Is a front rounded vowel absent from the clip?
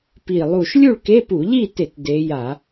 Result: yes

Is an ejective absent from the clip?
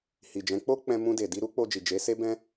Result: yes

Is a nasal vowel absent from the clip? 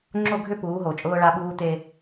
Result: yes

